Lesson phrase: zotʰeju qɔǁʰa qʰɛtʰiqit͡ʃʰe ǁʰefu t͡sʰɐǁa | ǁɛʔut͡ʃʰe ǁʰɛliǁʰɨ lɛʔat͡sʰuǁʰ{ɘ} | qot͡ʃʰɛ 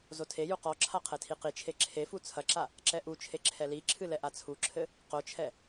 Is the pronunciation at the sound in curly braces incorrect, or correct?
correct